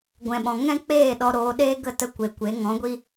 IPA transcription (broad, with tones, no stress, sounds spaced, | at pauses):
ɡʷ ɛ̃˨ ɓ ɔ̃˨ ŋ ɛ̃˦ k͡p eː˦˨ ɗ ɔ˧ ɾ oː˧ ɗ eː˦ ɡ ə˦˨ t ə˧ kʷ e˨ kʷ e˨˦ ŋ ɔ̃˨˦ ɡʷ i˦